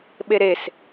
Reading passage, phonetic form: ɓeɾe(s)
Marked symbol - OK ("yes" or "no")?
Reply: yes